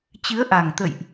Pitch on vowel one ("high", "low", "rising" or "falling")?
rising